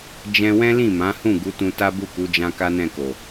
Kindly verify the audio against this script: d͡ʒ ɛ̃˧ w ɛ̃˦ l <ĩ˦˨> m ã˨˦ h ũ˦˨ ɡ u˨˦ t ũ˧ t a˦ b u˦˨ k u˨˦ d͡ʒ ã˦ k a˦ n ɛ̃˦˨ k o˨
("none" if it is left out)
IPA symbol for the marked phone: ĩ˦˨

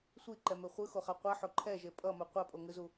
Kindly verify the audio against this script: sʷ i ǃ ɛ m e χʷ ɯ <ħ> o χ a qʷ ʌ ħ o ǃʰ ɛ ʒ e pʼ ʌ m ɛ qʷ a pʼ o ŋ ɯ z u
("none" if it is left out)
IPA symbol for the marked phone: x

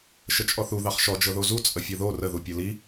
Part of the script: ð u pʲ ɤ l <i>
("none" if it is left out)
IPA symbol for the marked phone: i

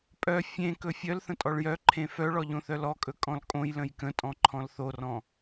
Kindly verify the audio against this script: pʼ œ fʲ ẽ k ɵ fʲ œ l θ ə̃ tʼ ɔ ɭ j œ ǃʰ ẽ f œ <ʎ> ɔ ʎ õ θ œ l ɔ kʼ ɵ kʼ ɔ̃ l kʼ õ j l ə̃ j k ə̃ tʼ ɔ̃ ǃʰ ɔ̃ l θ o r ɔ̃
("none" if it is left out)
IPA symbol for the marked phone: ɭ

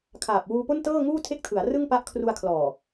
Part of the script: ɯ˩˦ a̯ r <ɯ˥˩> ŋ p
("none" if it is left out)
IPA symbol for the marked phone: ɯ˥˩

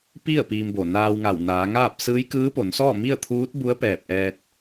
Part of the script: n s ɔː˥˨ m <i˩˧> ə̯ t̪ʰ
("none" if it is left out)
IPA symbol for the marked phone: i˥˨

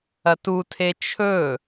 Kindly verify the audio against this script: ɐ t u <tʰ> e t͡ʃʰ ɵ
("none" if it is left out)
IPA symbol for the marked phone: tʰ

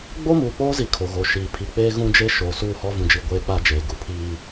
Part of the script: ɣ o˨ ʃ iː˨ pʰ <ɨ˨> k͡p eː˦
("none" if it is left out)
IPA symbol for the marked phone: i˨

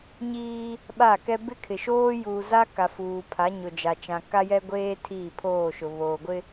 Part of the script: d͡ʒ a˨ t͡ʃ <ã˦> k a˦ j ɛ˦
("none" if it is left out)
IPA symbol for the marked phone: ã˨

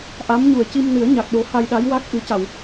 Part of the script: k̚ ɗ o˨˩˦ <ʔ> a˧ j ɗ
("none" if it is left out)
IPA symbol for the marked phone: h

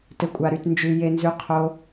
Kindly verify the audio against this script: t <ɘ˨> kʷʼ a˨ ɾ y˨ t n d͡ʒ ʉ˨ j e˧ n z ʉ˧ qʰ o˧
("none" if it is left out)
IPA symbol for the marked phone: ɘ˨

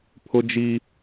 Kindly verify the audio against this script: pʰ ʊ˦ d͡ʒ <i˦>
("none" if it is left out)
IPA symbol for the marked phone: i˦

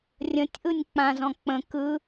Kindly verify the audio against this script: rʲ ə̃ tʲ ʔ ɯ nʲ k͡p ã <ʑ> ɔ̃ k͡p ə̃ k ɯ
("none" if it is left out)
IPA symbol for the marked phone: z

